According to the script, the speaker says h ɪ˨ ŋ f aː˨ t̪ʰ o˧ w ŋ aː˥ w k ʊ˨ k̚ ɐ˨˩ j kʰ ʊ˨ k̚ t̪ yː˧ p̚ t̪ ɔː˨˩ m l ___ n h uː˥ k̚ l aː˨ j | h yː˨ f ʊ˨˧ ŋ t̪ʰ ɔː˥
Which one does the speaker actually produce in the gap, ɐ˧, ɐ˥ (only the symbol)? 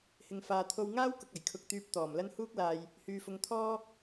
ɐ˥